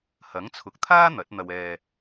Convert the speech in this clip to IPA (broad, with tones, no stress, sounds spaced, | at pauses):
h ɐ˨˥ ŋ t͡sʰ ʊ˨ k̚ t̪ʰ aː˥ n̪ ɐ˨˥ t̚ n̪ ɐ˧ w ɛː˧